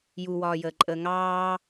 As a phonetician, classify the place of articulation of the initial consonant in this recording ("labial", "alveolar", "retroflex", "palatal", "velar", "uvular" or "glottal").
palatal